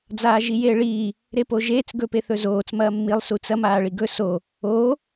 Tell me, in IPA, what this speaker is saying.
d͡zaːʒijeːɭiː | ɾepoʒeːt͡s ɡɵpeθɵzoːt͡s mɐːmːilˠ sut͡sɐ maːɭiɡɵ so | oː

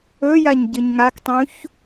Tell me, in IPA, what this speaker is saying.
ɵjaɲɟɨɲ ŋaktˤũç

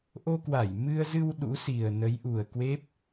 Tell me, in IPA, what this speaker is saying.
ʔo˧kwa˧˩jmɨ˧ə̯zɨ˧w ɗṵ˧˥si˨˩ə̯nə˨˦j ʔu˨˩ə̯kwe˦˥p̚

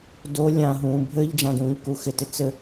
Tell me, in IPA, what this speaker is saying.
do lʲã ɦũːbʱɘʎ d͡ʒãdũːʎkuxɪ tɪt͡sɘ

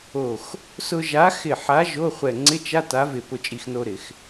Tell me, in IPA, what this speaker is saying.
o˧˩x | sʊ˧ʒa˨˥xɪ˧˩ ħa˨˥ ʒo˧˥˧χʷɛ˧˩ ŋ͡ǀɪ˧˥˧t͡ʃa˧˥˧t a˨˥vɪ˧˩ pʊ˧˩ t͡ʃʼi˧˩xno˧ɾɪ˧˩˧x

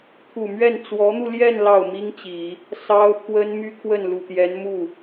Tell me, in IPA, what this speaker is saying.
t̪ʰu˨˩mɥɛ˥˩n t͡swɔ˧˥n̪u˧ljɛ˥˧n lɑ˥˩ʊ̯mi˥ŋt͡ɕi˨˩˦ | sɑ˥ʊ̯pʰwə˥n my˥kʰwə˥˩nlu˨˩t̪jɛ˧˥n mu˥˩

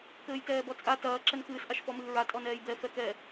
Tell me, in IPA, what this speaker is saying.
kɘːjtɛːbɔt͡sʼa tɐː ǁɛnkɨːs ʔaʃfɔmɨːɹa tʼɔnɛːjbɛ fɛkɛ

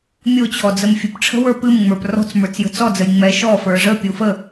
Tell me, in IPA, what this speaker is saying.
mʲo t͡ɕʰɔd͡zəmfʲɨpʈ͡ʂʰə̤ wə˞pɨmŋ͡mə˞p rɔ̤t͡s mə˞t͡sjə̤t͡sɔd͡zəj ŋ͡mɛʃɔfə˞ ʐəpʲo fə

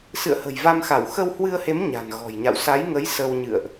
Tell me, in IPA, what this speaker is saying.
sɨ̰˧˨ə̯hə̤˨˩jva˧mxa˧˩w xə˧whwɨ˧ə̯he˨˦m ɲa̤˨˩n ɣɔ̤˨˩jɲa̰˧˨w sa˨˦jŋə˨˦j sə˧wɲɨ̰˧˨ə̯ʔ

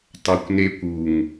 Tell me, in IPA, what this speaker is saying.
tˤokʷnekʷ uŋ

